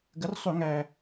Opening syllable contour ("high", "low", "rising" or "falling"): rising